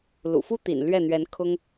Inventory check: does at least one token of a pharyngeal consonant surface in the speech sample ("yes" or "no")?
no